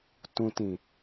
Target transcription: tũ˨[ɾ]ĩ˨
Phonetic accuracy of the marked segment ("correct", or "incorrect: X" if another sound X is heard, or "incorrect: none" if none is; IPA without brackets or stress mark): incorrect: t